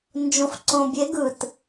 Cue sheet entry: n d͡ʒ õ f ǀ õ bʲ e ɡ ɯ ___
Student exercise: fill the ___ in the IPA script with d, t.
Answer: t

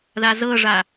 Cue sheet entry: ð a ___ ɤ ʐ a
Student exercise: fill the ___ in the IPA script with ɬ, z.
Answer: z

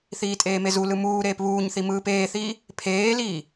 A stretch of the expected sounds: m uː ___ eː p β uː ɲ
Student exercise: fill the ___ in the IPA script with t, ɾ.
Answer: ɾ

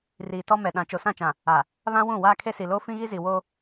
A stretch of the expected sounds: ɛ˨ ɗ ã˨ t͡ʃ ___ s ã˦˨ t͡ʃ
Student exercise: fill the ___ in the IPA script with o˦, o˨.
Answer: o˨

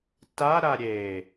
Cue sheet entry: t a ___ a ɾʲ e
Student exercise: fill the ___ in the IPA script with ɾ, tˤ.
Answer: ɾ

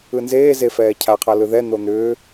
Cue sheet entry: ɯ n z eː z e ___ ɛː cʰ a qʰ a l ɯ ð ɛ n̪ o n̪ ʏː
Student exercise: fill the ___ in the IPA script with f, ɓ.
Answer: f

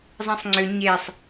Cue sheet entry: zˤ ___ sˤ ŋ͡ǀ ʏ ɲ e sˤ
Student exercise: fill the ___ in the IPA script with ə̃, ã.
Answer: ã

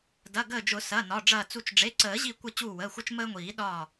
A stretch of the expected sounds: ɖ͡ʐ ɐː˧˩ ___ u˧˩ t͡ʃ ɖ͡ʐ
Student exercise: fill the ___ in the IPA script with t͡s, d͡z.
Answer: t͡s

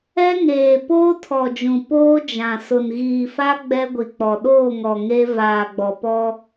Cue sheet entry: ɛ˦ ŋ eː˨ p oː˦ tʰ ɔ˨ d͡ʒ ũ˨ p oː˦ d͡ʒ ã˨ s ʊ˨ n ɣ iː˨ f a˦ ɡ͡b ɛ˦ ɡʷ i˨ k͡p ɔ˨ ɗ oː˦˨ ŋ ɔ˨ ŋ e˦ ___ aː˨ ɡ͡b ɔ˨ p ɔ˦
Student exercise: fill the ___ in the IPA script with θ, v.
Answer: v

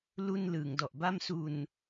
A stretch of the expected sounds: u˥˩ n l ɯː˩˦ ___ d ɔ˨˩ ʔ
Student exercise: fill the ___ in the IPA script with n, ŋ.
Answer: ŋ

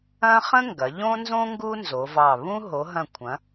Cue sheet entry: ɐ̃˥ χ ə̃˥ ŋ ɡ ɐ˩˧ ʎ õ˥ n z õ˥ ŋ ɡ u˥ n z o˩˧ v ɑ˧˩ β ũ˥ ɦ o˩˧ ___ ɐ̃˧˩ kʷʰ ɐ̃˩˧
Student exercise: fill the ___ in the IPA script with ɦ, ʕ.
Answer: ɦ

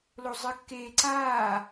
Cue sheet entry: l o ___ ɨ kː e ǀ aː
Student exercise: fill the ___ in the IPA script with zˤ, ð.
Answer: zˤ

